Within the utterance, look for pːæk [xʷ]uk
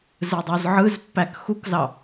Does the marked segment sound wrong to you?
yes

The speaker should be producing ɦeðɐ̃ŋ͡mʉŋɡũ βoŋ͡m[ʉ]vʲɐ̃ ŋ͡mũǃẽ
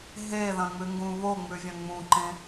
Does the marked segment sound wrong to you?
no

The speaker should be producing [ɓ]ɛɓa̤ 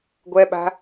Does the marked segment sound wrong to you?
yes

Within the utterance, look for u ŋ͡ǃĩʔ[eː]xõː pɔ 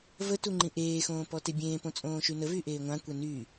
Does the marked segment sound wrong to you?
no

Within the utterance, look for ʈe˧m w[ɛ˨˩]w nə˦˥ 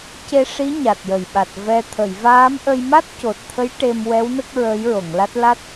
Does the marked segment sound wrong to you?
yes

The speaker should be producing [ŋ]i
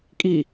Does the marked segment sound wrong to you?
yes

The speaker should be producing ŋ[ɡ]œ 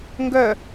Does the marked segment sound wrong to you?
no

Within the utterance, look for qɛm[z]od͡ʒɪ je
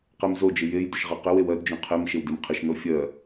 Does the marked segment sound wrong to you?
no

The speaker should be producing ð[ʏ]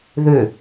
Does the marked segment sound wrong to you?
no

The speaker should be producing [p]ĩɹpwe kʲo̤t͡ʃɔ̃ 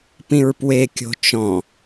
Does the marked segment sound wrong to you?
no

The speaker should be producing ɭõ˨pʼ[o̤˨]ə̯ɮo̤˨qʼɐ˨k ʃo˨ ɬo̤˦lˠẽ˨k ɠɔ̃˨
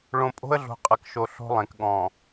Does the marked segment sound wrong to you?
yes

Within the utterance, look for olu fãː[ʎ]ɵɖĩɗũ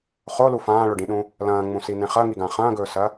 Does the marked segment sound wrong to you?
yes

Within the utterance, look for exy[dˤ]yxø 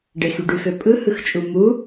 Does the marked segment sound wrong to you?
yes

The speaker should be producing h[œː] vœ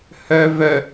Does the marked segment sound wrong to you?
yes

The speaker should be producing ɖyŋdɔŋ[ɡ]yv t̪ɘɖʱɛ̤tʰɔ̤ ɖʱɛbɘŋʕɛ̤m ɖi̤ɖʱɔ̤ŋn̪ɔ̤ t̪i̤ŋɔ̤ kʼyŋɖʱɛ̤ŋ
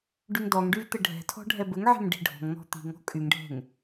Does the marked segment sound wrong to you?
yes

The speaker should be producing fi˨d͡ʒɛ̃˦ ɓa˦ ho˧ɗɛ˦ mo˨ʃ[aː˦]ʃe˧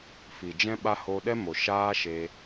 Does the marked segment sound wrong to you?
no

